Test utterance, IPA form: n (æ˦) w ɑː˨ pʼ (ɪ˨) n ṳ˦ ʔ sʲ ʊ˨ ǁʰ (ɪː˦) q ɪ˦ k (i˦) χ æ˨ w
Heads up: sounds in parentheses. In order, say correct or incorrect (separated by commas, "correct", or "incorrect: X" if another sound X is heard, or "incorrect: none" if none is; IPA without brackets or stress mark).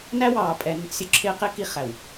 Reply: correct, incorrect: ɛ˨, correct, correct